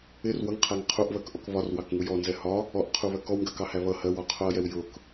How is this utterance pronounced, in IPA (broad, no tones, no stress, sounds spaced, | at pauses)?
ɪ r w ʌ ŋ qʰ æ ŋ qʰ u ʔ β ɜ k ʔ ɔ k β ɒ r w ɑ k ŋ u j ɔ n z ɛ h ɒ | ɔ ʔ qʰ u β ɜ k ɔ w ŋ ɡ ɜ k ɑ h æ β ʌ h ɜ w ɒ qʰ ʊ ɐ̯ j ɛ w j ʊ k